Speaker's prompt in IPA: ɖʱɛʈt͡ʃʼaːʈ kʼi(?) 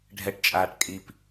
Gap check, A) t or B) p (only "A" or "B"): B